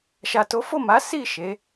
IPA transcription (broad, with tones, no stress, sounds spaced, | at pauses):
ʃ a˨ t o˨˦ f o˦˨ m a˨˦ s i˦˨ ʃ e˨˦